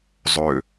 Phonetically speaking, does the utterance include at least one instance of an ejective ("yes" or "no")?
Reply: no